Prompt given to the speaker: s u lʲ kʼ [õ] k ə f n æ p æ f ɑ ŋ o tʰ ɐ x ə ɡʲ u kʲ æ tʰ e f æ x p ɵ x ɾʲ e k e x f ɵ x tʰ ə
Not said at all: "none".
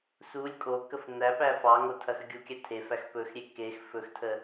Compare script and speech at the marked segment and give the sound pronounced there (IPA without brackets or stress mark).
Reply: o